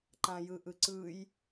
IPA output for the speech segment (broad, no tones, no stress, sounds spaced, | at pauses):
ǃ ã j ɯ ʔ ɯ ǀ ɯ j